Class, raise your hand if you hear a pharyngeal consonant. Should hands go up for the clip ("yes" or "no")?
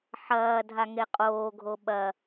yes